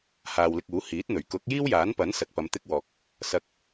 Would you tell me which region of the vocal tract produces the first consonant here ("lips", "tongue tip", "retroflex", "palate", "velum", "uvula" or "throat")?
throat